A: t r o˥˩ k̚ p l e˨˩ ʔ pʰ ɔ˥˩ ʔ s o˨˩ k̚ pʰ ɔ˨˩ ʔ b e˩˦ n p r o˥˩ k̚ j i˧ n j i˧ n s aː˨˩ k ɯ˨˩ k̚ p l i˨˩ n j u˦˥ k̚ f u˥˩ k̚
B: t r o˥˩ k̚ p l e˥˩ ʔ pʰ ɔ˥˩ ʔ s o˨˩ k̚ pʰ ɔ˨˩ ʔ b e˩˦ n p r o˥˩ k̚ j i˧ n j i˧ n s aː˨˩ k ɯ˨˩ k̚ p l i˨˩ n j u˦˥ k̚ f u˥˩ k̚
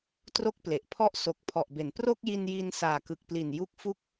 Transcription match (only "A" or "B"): A